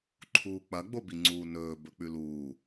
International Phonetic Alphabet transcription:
ǃʰ uː k͡p ɐ ɡ͡b o b i ŋ͡ǀ uː n ɵː b ɵ k͡p ʉ l uː

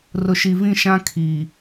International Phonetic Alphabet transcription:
r ʊ˨ ʃ i˨ v ĩ˦˨ ʃ ã˦ kʰ i˨

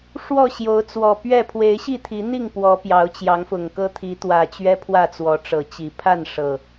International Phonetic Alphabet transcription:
ʂ w ɔ˥˨ ɕ j o˨˦ ʊ̯ t͡s w ɔ˨˩ p ɥ ɛ˥˨ pʰ w e˨˦ ɪ̯ ɕ i˥˨ t̪ʰ i˨˦ n̪ i˥˨ ŋ p w ɔ˨˦ p j ɑ˨˦ ʊ̯ t͡ɕ j ɑ˨˦ ŋ f ʊ˨˩ ŋ k ɤ˦ t̪ʰ i˨˦ t̪ w ä˨˩ t͡ɕ ɥ ɛ˦ pʰ w ä˥˨ t͡s w ɔ˨˦ ʈ͡ʂ ɤ˨˩ t͡ɕ i˨˦ pʰ a˥˨ n ʂ ɤ˨˩

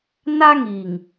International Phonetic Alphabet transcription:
n a˦ ŋ i˨ ŋ

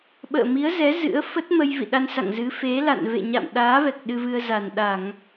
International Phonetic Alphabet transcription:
ɓ ə̰ː˧˨ m i˨˦ ə̯ z ɛ˨˦ z ɨ̰˧˥ ə̯ f ə˦˥ t̚ m ə˧ j v ḭ˧˨ ɗ a˧ n s a̰˧˨ ŋ z ɨ˨˦ f e˨˦ l a̰˧˨ n v ḛ˧˨ ɲ a̰˧˨ m ɗ aː˨˦ v ɛ˨˩ k̚ ɗ ɨ˧ v ɨ˧ ə̯ z a˨˩ n ɗ a˧˩˨ ŋ

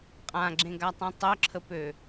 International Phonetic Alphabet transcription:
qʼ ã ɡ͡ǁ ẽ ɡ a tˤ ũ tˤ œ ǁʰ ə p ø

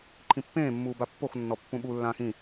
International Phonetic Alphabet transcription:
ǃʰ ĩ pː ẽː mː uː b a pː o x nː ɔ pː ũ ɓ u lː ãː x ĩ

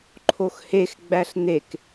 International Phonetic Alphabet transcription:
ǃʰ o x h e x ɡ͡b æ ɬ n̪ e k

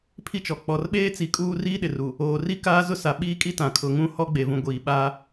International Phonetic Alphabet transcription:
pʰ i˦ t͡ʃ ɔ˨ k͡p ɔ˨ r ɓ eː˦ t͡s i˨˦ kʼ uː˦ r iː˦ ɗ ɪ˨ r u˨ | oː˨ r i˦ k aː˦ z ʊ˦ s a˨ ɓ iː˦ kʼ i˦ t ã˨ kʰ ʊ˨ ŋ ũ˦ h ɔ˦ ɡ͡b e˨ v ũ˨ ɡʷ iː˨ ɓ aː˦

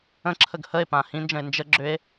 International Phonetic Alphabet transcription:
ə̃ ǁʰ ə ɡ h ə e̯ p ã h ĩ n d͡ʒ ə̃ e̯ n d͡ʒ ə ɡ͡ǁ ʏ e̯

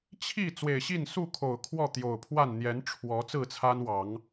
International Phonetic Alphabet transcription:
t͡ɕʰ i˥˨ t͡s w e˨˩ ɪ̯ ɕ i˥˨ n s u˥˨ kʰ o˨˩ ʊ̯ kʰ w ɔ˥˨ t̪ j o˨˩ ʊ̯ pʰ w a˥˨ n n̪ j ɛ˨˦ n ʈ͡ʂʰ w ɔ˨˦ t͡s ɹ̩˥˨ t͡sʰ a˦ n w ɑ˨˦ ŋ

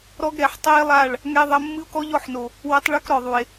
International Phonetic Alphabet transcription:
ɾ ɔ˦ ɡ ɾ ɛ˨ ħ tˤ ɛ˦ e̯ lˠ a˦˨ ɭ | ŋ ɛ˦ ðˤ ɐ˦ mː ɨ˦ o̯ k ɔ˦ ʎ ɔ˦˨ ħ n o˨ | w ɐ˦ tˤ ɭ o˦ k ɾ ɔ˨ ðˤ u˨ e̯

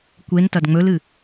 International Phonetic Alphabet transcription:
kʷ e n t ɐ d ŋ͡m ɵ l ɨ

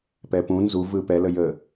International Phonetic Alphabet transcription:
p ɛ p ũ n z u v ɯ p ɛ l ə j ə

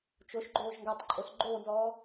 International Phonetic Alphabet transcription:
t͡ʃ o ʃ ɡ͡ǃ oː ʒ ŋ ɡ a tˤ ǃʼ o s ɡ͡ǃ oː n z ɔː

